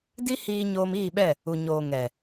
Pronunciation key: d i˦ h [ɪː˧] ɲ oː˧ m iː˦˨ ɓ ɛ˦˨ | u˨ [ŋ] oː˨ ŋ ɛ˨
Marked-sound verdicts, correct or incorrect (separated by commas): incorrect, incorrect